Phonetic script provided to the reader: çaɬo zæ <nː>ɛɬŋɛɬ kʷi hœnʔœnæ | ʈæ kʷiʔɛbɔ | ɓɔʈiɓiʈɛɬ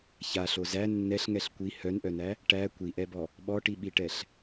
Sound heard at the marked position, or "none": nː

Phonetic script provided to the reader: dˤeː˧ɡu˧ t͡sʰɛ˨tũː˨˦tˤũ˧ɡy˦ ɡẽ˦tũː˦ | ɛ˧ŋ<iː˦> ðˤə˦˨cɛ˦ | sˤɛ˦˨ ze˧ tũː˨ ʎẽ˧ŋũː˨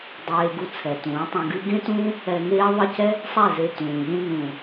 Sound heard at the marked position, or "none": eː˦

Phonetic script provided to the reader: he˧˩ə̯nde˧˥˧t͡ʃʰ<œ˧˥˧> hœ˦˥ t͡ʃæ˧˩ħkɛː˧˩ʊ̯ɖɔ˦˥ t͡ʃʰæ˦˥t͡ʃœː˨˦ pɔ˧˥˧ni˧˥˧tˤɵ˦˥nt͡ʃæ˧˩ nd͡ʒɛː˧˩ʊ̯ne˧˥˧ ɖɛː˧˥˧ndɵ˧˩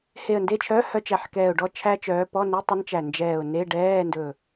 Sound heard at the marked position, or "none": œ˧˥˧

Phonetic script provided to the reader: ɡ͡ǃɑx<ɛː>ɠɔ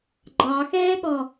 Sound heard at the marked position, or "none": ɛː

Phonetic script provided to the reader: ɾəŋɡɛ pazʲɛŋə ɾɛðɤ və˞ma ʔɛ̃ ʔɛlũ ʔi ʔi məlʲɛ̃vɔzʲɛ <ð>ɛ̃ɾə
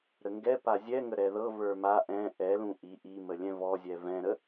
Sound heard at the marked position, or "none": v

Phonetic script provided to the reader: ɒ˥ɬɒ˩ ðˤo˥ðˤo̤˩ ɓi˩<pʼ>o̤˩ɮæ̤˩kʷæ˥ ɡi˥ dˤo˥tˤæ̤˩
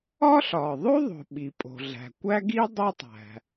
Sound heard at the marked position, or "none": pʼ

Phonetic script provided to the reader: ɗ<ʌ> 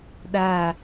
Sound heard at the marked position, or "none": a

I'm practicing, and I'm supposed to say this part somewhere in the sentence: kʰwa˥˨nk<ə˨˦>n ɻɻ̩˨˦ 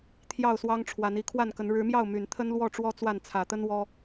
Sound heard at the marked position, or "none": ə˨˦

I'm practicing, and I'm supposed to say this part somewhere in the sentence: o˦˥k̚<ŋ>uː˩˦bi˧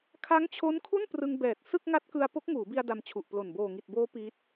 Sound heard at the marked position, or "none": ŋ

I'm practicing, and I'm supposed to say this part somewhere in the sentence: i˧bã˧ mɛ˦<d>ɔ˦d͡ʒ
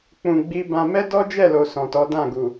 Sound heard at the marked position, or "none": d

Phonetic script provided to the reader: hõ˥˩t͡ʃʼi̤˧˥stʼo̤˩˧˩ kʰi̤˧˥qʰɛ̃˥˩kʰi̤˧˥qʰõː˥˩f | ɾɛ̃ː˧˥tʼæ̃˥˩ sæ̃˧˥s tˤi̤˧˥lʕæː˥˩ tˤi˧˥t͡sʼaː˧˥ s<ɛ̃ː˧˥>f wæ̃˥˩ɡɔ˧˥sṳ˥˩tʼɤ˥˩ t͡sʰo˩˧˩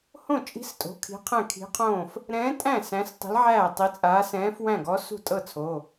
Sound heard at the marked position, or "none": ɛ̃ː˧˥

